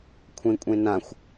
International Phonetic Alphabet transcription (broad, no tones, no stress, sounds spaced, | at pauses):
kʷʰ ẽ kʷʼ ẽ n ã xʷ